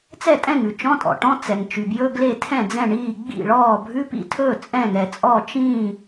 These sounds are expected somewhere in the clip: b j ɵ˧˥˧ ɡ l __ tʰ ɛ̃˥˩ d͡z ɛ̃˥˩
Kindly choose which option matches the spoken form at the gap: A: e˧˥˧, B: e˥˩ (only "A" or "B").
B